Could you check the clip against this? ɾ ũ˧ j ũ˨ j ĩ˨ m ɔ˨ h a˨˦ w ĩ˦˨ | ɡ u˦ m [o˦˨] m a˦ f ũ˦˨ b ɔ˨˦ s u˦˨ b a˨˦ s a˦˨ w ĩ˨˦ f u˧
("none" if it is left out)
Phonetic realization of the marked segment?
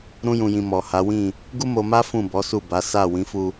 o˧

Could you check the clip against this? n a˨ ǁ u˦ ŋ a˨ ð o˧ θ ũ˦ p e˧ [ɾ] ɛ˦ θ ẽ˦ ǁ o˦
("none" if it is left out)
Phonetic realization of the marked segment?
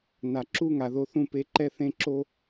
ǃ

